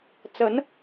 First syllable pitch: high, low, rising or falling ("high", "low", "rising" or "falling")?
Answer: rising